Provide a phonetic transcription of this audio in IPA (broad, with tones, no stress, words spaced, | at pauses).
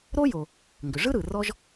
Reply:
ɾo˥jo˩ | ŋɡʏ˩ ʐɯ˥ ɾɯ˩rɔ˥ʒ